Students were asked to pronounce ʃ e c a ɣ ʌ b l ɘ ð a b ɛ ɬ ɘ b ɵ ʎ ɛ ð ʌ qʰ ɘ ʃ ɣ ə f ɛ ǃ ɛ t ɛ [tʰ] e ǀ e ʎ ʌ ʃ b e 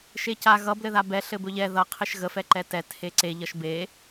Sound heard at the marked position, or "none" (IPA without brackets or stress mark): tʰ